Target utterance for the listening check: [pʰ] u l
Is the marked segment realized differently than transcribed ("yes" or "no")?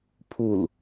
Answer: no